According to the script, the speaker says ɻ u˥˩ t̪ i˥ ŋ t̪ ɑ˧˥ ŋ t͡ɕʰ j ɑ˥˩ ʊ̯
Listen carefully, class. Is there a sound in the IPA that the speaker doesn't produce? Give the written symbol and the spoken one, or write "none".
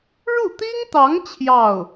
none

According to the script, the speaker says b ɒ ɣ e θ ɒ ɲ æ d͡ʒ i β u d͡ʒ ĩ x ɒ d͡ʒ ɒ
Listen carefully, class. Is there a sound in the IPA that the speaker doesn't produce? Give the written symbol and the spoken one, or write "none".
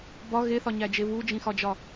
i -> e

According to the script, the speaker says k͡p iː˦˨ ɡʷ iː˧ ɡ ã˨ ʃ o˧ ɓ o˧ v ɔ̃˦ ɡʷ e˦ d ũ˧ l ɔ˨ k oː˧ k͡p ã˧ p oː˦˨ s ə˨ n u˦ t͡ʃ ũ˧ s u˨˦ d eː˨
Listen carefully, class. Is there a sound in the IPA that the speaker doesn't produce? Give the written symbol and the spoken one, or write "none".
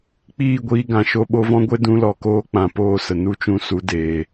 none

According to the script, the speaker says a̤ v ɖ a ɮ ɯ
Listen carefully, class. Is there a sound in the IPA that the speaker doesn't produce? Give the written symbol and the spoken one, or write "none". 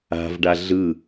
none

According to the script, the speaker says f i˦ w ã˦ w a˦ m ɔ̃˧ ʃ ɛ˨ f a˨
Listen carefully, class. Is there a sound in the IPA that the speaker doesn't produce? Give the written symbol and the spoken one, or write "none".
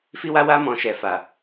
ã˦ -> a˦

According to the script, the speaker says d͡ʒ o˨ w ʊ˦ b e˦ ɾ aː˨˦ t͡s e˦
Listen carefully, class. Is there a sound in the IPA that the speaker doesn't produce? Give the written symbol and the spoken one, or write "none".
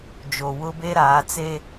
none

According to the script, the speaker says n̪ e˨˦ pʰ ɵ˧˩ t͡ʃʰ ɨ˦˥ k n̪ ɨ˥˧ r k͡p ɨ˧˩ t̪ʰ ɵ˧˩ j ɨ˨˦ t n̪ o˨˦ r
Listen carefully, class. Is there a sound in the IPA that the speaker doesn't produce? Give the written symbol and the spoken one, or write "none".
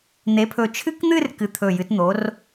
k͡p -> k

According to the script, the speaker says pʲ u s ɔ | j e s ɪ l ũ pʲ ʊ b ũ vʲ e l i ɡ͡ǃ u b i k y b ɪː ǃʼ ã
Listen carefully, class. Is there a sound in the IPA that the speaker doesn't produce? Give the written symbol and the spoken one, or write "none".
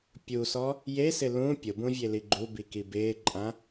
y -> i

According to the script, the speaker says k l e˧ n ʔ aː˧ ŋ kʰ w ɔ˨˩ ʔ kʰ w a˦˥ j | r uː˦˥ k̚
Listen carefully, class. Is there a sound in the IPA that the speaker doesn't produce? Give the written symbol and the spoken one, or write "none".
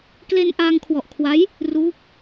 none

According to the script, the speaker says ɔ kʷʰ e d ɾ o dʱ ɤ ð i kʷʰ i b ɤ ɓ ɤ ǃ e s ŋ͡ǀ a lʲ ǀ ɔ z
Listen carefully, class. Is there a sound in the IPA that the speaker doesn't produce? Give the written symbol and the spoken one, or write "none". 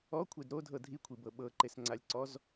ð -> dʱ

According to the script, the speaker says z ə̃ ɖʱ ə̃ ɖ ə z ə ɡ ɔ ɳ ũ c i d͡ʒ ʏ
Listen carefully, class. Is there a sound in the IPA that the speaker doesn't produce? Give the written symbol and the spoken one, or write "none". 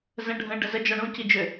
ɡ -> d͡ʒ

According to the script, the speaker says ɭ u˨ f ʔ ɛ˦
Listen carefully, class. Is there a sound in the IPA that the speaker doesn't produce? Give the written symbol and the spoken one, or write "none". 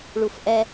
none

